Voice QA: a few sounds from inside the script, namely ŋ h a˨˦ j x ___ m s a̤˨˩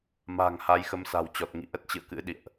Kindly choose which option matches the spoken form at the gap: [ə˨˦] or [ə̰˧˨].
ə˨˦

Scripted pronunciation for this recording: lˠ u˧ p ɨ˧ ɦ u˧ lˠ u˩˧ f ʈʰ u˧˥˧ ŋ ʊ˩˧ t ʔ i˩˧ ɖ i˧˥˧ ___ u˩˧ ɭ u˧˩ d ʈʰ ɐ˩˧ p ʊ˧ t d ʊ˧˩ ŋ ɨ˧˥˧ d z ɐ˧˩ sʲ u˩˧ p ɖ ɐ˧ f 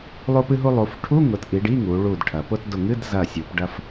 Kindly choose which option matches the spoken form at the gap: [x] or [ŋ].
ŋ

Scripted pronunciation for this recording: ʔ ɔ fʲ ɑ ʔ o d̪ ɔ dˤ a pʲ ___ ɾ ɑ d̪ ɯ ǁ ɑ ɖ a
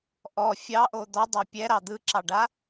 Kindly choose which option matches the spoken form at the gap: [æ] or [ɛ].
ɛ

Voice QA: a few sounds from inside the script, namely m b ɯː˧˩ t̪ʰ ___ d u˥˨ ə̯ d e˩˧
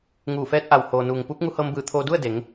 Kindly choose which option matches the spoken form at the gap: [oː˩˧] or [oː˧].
oː˧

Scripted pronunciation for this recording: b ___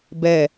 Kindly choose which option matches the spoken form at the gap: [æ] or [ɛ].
ɛ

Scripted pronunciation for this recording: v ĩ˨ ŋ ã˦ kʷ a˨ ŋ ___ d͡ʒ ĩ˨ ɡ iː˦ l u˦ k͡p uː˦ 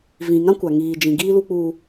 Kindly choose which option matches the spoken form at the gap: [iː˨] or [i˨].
iː˨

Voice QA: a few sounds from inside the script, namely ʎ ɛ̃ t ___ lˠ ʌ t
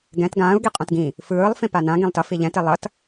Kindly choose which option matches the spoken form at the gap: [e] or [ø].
e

